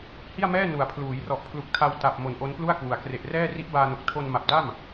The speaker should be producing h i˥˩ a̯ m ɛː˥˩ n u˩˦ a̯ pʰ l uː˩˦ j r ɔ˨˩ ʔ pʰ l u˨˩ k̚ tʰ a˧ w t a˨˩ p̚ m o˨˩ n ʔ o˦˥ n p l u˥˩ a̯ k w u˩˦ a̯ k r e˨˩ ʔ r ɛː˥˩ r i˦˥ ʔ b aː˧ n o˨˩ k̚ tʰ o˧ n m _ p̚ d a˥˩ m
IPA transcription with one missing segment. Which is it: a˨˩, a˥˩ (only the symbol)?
a˨˩